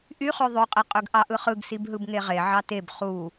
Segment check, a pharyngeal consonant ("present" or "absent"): present